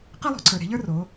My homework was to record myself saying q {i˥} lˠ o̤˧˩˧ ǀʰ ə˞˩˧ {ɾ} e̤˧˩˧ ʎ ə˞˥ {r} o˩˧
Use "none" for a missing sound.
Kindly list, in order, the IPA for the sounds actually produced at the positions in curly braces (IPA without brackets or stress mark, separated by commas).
i˥, ɾ, r